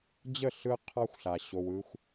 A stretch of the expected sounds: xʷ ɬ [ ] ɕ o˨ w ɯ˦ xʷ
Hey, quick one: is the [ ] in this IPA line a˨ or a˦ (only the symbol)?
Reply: a˨